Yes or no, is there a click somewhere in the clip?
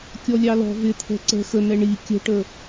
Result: yes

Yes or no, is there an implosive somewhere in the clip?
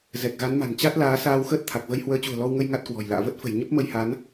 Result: no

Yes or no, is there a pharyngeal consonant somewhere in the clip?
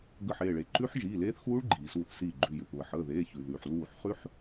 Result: yes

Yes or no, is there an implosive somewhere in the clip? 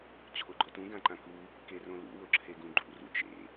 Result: no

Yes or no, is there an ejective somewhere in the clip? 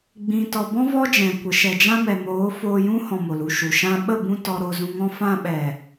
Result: no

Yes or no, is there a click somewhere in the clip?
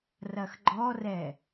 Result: yes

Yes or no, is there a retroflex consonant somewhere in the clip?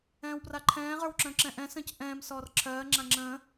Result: no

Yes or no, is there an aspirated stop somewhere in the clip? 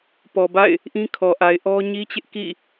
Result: yes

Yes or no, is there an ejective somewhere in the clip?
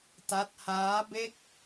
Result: no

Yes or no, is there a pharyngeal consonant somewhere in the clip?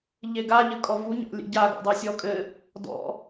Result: no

